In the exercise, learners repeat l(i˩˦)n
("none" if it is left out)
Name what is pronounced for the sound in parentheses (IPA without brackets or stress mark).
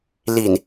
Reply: i˨˩